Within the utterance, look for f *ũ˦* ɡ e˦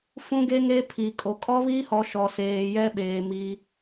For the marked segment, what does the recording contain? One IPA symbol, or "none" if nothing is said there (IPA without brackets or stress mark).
ũ˦